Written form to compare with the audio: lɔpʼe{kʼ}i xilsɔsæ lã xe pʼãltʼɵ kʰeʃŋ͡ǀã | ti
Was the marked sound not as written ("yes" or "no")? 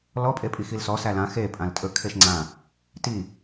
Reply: yes